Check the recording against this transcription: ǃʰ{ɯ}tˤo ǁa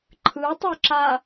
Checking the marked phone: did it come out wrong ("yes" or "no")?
no